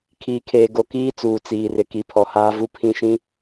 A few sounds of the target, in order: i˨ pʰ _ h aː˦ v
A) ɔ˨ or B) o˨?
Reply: A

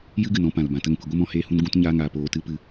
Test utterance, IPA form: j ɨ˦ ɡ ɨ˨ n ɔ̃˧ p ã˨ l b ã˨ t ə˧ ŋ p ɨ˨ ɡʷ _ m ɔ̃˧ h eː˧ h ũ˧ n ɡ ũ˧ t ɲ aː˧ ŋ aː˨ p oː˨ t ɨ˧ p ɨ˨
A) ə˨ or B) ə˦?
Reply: B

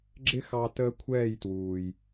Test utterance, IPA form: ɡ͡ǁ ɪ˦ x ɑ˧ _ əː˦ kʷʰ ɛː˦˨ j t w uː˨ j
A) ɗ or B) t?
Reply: B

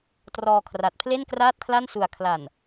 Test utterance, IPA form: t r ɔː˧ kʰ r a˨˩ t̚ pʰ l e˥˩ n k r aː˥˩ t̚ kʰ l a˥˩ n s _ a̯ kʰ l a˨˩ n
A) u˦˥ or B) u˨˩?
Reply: B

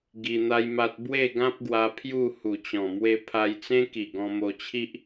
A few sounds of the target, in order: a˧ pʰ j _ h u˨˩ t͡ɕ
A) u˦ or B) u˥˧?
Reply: B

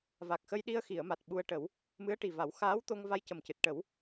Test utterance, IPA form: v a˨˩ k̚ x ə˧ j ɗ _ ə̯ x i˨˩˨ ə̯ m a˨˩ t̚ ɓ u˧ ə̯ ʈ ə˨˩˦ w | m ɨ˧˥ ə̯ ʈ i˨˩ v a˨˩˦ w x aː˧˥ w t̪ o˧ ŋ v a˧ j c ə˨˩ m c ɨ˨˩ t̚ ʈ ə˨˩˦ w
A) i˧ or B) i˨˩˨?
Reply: A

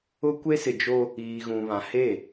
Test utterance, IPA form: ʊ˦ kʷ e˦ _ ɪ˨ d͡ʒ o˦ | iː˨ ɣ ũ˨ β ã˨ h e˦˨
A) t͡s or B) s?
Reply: B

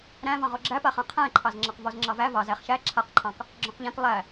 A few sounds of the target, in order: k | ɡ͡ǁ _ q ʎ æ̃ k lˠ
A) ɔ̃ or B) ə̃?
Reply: A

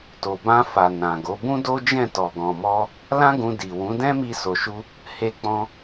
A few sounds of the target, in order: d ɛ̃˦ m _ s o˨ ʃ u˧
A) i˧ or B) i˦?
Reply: A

